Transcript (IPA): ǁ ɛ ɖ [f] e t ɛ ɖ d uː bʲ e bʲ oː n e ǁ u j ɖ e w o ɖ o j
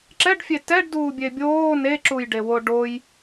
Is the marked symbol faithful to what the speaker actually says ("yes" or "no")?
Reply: no